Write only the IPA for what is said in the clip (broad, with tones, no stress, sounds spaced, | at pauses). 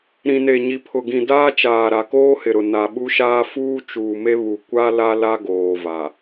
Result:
ɾ ĩ˨ n e˨ ɲ i˨ pʰ ʊ˨ ɡ ĩ˨ d aː˦ t͡ʃ aː˨ ɾ a˨ k oː˦ h ɪ˨ ɾ ʊ˨ n a˨ ɓ u˦ ʃ aː˦ f uː˦ t͡ʃ uː˨ m e˦ β u˨ kʷ a˦ l a˦ l a˦ ɡ oː˨ v a˨